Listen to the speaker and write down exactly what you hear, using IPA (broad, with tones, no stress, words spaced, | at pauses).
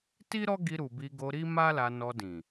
ti˦ɾɔ˦ɡi˧ ɾu˨bi˧ɡo˧ɾi˦ ma˦la˧nɔ˧dĩ˨